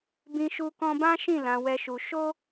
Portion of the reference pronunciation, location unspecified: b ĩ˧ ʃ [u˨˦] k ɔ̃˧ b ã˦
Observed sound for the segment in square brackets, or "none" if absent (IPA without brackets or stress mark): u˧